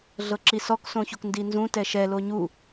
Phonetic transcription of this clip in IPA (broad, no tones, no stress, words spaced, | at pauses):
ɮɤǁisɔk sõçokndinzũ tɛʃɛ loɲu